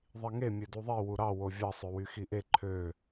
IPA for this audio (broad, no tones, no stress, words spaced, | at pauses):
ðˤiŋe mʲøduðˤi wuɾɑ wovʲɑ sˤøwyxiʔe ǃʰø